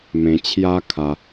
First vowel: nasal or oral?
nasal